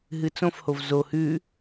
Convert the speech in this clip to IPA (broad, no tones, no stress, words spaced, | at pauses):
ɦɨt͡sõfhov zo hʉ